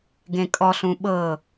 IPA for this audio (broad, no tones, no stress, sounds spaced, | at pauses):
ɡ ẽ kʼ ɔ ɬ ũ ɓ ɤ